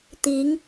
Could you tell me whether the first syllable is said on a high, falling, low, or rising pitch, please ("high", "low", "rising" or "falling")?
rising